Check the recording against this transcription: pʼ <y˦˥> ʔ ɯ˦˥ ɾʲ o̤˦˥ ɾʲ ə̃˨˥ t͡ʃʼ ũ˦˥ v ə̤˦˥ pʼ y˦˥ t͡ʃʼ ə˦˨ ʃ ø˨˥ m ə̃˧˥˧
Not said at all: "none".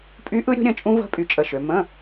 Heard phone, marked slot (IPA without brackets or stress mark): y˦˥